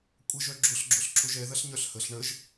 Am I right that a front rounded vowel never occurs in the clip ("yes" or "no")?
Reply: no